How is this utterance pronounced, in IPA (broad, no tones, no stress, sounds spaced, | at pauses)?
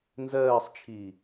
n z ɜː sˤ t͡ʃʰ iː